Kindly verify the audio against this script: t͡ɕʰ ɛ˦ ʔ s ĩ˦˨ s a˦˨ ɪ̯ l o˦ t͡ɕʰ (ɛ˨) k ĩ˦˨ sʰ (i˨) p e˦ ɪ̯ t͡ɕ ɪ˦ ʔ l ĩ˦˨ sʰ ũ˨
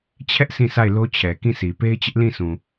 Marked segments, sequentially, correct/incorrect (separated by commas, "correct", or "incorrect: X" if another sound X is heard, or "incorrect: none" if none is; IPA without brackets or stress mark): correct, correct